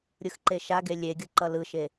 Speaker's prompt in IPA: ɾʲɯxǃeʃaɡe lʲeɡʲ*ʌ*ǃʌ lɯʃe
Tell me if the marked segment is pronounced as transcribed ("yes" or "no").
yes